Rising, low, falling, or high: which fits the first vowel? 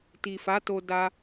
low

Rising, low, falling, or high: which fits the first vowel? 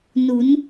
rising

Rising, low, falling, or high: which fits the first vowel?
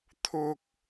high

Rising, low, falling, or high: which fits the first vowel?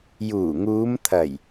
low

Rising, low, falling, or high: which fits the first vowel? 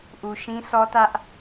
low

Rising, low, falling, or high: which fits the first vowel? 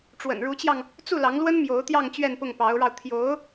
low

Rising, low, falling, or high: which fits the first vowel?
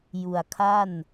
low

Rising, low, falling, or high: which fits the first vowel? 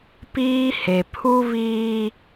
high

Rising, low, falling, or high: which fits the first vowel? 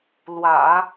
low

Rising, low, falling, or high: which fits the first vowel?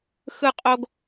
high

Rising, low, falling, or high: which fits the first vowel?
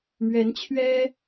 rising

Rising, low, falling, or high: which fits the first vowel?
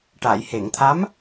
low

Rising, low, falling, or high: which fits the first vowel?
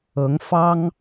rising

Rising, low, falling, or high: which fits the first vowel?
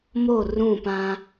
falling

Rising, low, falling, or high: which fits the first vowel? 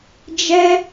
high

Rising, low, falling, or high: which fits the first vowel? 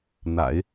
low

